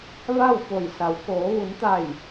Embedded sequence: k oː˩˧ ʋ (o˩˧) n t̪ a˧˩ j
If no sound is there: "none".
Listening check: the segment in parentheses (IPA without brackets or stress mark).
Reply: u˩˧